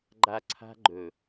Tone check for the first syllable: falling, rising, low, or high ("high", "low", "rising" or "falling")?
low